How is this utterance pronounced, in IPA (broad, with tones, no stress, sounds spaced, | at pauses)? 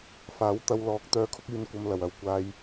f aː˨˥ w t̪ ɐ˧ w l ɔː˨˥ k̚ t̪ œː˨˧ kʰ ʊ˧ k̚ yː˨ n kʷ ɐ˧ m l ɐ˨ w ɐ˨ w kʷ aː˧ j